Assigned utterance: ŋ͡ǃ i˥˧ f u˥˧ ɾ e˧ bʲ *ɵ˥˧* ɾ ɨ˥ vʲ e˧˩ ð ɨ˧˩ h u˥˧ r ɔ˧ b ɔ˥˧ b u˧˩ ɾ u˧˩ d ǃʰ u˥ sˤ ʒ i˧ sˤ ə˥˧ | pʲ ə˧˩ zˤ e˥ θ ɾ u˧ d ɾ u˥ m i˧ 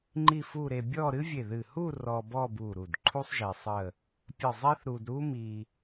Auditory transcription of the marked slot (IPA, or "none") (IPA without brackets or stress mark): ɔ˥˧